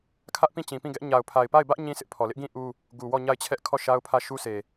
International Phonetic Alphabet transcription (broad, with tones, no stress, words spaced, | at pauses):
kʰä˦ʔpĩ˦˨t͡ɕĩ˨pĩ˦˨ ɡɛ˦ʔ ɲa˨ʊ̯pʰa˨ɪ̯ pa˦˨ɪ̯bä˦ʔ ɲĩ˦ sɪ˦ʔpʰɔ˨ lɪ˦ʔɡĩ˦ ʔu˦ | ɡu˨ wɔ˦˨ɲa˦˨ɪ̯t͡ɕʰɛ˦ʔ kʰɔ˦˨ ʃa˦ʊ̯pʰä˦˨ʃu˦ se˨